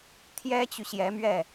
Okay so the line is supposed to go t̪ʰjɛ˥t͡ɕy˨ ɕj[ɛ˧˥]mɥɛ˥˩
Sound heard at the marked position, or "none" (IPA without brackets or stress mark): ɛ˧˥